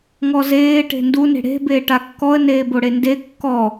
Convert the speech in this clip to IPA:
ŋ ɔ z eː ʈ e̤ n d u n e̤ ɽ e̤ b eː ʈ a kː ɔ ə̯ n eː b o ɽ e n d e kː ɔ

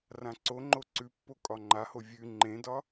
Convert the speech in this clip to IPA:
r ã ǀ o ŋ͡ǃ o ǀ ʉ pː o kʼ ɒ ŋ͡ǃ a h o vʲ ʉ ŋ͡ǃ ẽ d ɒ

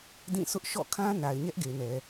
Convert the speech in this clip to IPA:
d ĩ˦˨ sʰ ʊ˦ ʔ ʃ ɔ̰˦˨ kʰ ã˦ n a˨ ɪ̯ ɲ ɛ˦ ʔ ɡ e˨ n ɛ˨

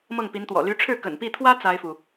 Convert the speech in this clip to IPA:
m ɤ˥˩ ŋ p i˧˥ n t̪ w ɔ̰˨˩ l y˧˥ ʈ͡ʂʰ ɻ̩˥˩ k ə̰˨˩ n p i˥˩ t̪ʰ w ä˥ t͡s a˥ ɪ̯ f u˨

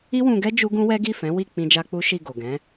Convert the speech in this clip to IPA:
i˦ w ũ˧ ɡ ɛ˦ d͡ʒ u˦ ɡ ũ˦ w ɛ˦ ɡ i˦˨ f ɛ̃˨˦ w i˦˨ k͡p ĩ˧ d͡ʒ a˧ k͡p u˦ ʃ i˦˨ ɡ o˨ ɡ ɛ̃˨˦

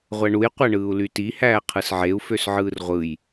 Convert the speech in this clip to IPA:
ʁʷ æ ɳ u j qʷ æ ɳ ɯː u̯ l y t i h æː qʰ ɯ s ʕ e u̯ f ø s ʕ ɯː r ʁʷ ɯ j

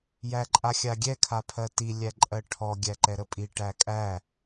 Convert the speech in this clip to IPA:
j æ ǃʼ a xʲ a ɡʲ ɛ kʰ a pʰ ɜ t i lʲ æ ǃʼ ɜ ʈʰ ɔ ɡʲ æ ǃ ɛ ɾ ə pʼ i ʈ æ kʼ æ

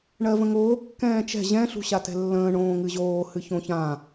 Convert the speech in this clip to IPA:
ɳ ɜ v ə̃ ŋ oː kː ɛ̃ː t͡ʃ ɛ̤ ʑ ɛ̃ ɬ ṳ ɕ a t ɛ̤ lː ə̃ː ɳ õː ŋ ɨ ʑ oː h ɨ ç õ ç ã

